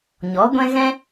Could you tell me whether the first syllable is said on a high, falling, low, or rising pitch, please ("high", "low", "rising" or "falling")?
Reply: rising